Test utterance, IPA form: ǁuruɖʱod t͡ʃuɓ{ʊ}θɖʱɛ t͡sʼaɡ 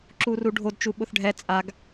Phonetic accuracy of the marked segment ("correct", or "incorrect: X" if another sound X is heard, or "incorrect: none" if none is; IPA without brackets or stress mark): correct